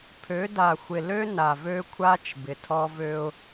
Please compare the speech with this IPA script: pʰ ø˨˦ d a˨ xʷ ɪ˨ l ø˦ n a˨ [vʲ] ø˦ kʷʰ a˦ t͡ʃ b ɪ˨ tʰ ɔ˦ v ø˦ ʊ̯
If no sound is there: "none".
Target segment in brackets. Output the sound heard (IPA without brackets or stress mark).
v